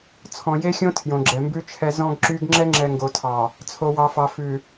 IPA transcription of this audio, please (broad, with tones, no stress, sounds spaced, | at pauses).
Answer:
t͡sʰ ɔ̃˨ j e˦ xʲ õ˦ tʰ j õ˨ ɡ͡ǁ ɛ˨ m b ʉ˦ t͡ʃʰ ɛ˦ z ɔ̃˦ ɡ ǁ y˦ ɡ ŋ͡ǁ ɛ˦ ŋ͡ǁ ɛ˨ ŋ ɡ o˨ tʰ ɑ˨ | t͡sʰ o˨ w ɑ˨ f ɑ˨ f ʉ˨